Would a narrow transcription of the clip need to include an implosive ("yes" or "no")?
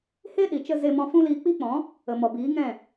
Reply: yes